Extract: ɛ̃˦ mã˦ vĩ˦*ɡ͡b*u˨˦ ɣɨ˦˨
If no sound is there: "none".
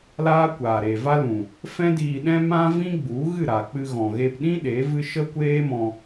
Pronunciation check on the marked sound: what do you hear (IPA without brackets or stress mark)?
ɡ͡b